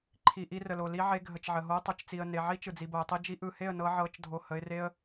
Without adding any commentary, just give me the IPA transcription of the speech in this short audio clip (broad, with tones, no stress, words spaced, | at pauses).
ǃʰi˨ ʔi˧rə˨lo˨ li˧ʕe˧ ɡʱə˨t͡ʃʕə˨ɦo˧ə̯ tˤɯ˨t͡ʃt͡si˨ə̯ ne˨ʕi˦ t͡ʃɯ˨d͡zi˨bo˨ə̯tˤi˦ d͡ʒi˧ʔɯ˨he˦˨ə̯ nɤ˧ʕɤ˨˦t͡ʃdʱo˨ hə˧ɪ̯re˦ə̯